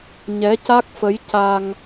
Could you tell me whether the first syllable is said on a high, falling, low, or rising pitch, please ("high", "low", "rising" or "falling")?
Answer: rising